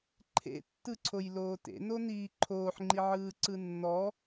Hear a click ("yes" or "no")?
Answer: yes